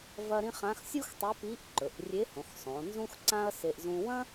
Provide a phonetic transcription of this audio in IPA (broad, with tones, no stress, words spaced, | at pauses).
vɐ˥ ɾĩ˥ χã˧˥xsʲu˥xtˤe˧˥ pi˧˥ʔǃɵ˩˧ʔ rʲe˧˥hõ˩˧xsˤõ˩˧ nzũ˥xǀã˥ɐ̯se˧ʔ zũ˧wɐ̃˥